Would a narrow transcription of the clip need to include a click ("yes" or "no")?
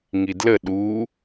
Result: no